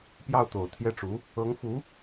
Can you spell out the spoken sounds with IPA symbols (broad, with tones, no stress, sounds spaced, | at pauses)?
p j ɑ˥˩ ʊ̯ t̪ o˨˩ ʊ̯ t̪ʰ j ɛ˥˩ ʈ͡ʂ u˧˥ | ɤ˧˥ ŋ f u˧˥